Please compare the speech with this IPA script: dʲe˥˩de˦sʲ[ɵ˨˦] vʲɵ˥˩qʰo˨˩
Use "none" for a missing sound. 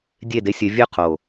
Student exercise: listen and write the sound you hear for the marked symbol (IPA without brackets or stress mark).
ɵ˨˦